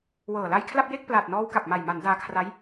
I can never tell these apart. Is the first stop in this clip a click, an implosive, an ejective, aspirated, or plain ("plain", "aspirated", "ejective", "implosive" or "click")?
aspirated